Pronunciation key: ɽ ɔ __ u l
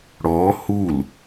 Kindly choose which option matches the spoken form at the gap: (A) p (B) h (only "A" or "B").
B